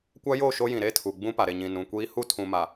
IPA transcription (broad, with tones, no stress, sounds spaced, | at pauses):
kʷ a˦ j o˦˨ ʃ o˦ j ĩ˨ ɾ e˦ tʰ u˨ ɡ͡b ũ˦ p a˨ ɾ e˨ ɲ ĩ˨ n ũ˨ kʷ iː˦ h u˦˨ tʰ ũ˨ m a˨